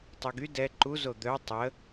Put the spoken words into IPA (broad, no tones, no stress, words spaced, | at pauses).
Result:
tˤyɡy dɛ ǃu zod̪œ tˤə